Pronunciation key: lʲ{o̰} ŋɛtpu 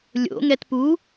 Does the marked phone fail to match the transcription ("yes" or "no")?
no